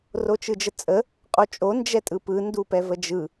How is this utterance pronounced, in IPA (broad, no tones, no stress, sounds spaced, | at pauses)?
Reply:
r o t͡ʃ ɯ d͡ʒ ə t͡sʼ ə | qʼ o t͡ʃʼ o n d͡ʒ ɛ tʼ ɯ p ɯ n d u p ɛ v ə d͡ʒ ɯ